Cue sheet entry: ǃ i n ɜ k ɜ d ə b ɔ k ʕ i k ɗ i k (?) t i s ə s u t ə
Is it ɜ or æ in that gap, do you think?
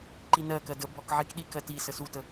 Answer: ɜ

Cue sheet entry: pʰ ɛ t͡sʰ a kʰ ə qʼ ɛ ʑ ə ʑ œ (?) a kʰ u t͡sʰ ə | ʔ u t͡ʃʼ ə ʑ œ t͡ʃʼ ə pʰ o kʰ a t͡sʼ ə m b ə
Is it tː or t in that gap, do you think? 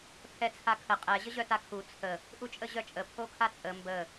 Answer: t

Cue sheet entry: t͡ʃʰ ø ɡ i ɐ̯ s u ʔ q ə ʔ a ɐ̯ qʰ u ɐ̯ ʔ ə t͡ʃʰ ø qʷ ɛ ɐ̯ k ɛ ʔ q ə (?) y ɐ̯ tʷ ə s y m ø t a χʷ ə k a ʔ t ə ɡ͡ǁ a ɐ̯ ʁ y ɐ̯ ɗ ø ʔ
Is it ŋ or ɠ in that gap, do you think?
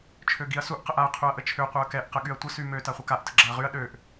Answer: ɠ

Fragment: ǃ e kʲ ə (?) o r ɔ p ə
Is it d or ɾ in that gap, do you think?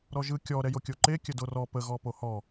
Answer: d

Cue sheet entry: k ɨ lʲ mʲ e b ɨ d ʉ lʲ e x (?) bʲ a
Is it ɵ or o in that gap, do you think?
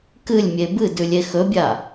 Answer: ɵ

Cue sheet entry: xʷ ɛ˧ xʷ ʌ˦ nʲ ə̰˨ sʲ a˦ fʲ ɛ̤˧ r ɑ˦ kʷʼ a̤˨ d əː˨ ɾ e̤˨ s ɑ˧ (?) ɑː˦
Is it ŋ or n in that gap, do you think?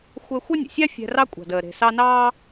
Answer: n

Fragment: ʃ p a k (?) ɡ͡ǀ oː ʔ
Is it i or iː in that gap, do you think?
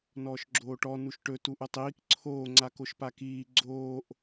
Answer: iː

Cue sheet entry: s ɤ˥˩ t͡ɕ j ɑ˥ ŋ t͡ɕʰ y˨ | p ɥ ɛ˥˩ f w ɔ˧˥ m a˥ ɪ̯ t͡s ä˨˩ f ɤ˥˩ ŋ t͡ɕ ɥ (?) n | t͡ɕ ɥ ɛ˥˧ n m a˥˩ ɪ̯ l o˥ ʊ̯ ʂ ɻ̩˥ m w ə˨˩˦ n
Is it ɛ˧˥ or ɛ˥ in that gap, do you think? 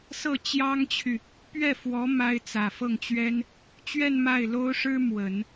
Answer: ɛ˥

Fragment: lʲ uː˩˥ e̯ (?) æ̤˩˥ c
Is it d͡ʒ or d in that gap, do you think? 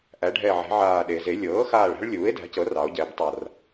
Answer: d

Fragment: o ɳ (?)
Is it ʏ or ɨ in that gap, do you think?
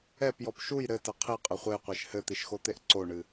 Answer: ɨ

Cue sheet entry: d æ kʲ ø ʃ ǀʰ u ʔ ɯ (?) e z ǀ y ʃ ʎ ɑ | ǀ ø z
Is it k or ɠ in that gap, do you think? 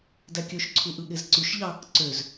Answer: ɠ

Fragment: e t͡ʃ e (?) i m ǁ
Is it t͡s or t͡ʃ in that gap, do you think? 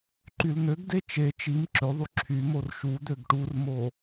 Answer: t͡ʃ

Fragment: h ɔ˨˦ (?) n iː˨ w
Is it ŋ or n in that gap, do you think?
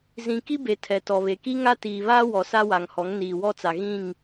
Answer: ŋ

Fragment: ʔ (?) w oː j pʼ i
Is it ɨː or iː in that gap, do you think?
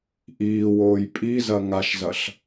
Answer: iː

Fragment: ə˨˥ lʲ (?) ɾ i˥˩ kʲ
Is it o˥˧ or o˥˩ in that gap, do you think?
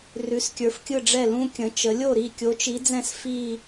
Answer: o˥˩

